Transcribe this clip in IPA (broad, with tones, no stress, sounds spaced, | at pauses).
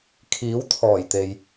kʰ iː˨˥ w t̪ʰ ɔː˨˩ j t̪ e˨ j